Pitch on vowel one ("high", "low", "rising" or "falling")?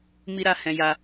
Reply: high